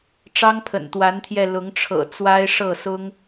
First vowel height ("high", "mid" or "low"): low